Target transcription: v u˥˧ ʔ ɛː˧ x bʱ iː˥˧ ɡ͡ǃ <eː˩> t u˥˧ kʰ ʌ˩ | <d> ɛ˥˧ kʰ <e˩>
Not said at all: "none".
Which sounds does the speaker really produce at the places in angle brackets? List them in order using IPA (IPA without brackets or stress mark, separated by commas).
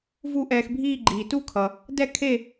iː˩, d, e˥˧